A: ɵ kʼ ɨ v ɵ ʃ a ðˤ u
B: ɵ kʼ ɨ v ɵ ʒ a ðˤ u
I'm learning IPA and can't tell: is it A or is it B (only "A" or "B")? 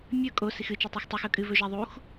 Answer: B